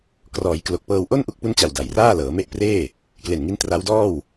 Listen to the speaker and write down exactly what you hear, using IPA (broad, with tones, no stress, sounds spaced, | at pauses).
k r ɔː˩˦ j k l o˨˩ k̚ p ɤː˧ w ʔ o˥˩ n ʔ u˦˥ k̚ p u˦˥ n t͡ɕ a˨˩ w d a˨˩ j r aː˥˩ l ɤː˩˦ m e˦˥ ʔ p r eː˥˩ | k l e˨˩ n ŋ i˦˥ n t r a˦˥ w d ɔː˥˩ w